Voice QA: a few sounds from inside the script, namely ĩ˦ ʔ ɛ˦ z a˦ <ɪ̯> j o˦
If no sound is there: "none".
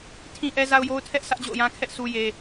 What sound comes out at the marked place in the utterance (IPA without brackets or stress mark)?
ʊ̯